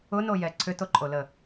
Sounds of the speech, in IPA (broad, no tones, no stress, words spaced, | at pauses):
ʊnojɛ ǀʰʏtoǃʼolə